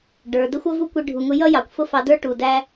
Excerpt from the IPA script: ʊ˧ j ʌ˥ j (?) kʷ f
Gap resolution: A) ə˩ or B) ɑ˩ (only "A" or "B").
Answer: B